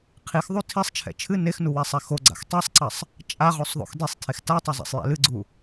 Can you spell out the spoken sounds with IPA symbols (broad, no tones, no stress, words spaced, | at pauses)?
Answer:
qʰixðˤu tʰisˤt͡ʃʰɛ̰ t͡ʃʰɨ nexnuwɛsˤɛ xoɡ͡ǀa̰x tˤɛsˤǀɐsˤ | t͡ʃʼaʁosˤðˤo̰x desˤtʰex tatˤɛzˤa̰sˤjɛ̰ lɨɡ͡ǀu